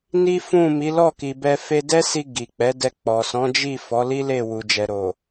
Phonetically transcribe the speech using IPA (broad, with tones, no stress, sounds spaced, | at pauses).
n i˦ f ũ˦˨ m i˨˦ l ɔ˦˨ k i˨ b ɛ˧ f e˧ d ɛ˦ s i˧ ɡ i˨ k͡p ɛ˨˦ d ɛ˧ k͡p ɔ˨ s ɔ̃˨˦ d͡ʒ i˦˨ f ɔ˨˦ l i˦ l e˦˨ w u˨ d͡ʒ ɛ˨ ɾ o˨